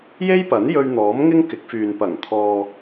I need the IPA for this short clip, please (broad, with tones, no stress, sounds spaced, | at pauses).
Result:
j e˥ j p ɐ˨˥ n j ɵ˧ ɥ n̪ ɔː˨˥ m ŋ ɪ˥ ŋ k ɪ˨˥ k̚ f yː˨ n p ɐ˨˩ ŋ t̪ʰ ɔː˧